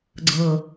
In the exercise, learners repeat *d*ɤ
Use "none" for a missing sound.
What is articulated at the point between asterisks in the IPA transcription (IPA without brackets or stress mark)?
ɡ͡ǀ